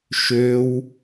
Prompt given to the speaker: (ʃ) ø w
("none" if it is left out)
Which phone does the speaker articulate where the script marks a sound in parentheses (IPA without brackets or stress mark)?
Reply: ʃ